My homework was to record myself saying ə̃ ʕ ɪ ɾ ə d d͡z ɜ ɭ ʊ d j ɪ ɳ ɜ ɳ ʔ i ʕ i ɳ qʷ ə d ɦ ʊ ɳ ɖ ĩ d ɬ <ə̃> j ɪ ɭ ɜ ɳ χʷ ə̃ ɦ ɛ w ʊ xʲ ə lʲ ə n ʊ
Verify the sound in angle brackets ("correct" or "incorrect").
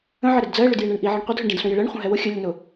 correct